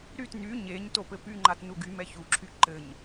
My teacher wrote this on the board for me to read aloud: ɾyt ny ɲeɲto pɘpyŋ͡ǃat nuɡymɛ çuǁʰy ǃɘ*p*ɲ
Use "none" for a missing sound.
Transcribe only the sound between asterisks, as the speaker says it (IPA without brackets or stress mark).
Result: none